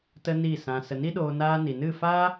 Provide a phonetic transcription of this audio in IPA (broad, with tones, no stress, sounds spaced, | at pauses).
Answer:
t ə˦ n i˦˨ s ã˧ s ə˧ n i˦ ɗ oː˧ n aː˧ n i˨ n ɨ˦˨ f aː˦